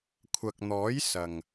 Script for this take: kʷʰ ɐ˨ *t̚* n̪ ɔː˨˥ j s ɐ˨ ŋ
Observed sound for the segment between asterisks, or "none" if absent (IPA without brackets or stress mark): k̚